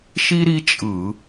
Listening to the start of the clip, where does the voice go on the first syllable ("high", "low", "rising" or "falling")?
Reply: high